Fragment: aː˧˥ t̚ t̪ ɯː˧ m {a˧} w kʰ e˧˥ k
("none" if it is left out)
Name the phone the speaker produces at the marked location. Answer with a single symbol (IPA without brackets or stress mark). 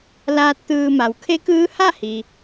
a˩˧